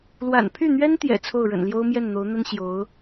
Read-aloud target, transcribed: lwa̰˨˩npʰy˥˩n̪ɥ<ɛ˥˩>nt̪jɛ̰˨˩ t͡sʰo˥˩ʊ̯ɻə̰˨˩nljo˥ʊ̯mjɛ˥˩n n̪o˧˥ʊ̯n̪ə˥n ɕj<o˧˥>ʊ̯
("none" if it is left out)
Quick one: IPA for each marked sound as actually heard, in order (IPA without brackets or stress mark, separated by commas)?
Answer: ɛ˥, o˧˥